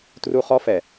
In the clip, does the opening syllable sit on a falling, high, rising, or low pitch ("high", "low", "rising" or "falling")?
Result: high